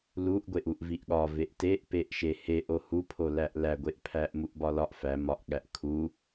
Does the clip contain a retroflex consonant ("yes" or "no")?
no